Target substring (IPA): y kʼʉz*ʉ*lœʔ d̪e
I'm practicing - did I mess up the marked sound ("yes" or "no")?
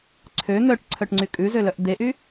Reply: yes